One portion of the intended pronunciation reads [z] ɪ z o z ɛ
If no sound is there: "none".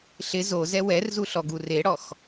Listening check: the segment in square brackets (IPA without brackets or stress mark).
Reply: ɬ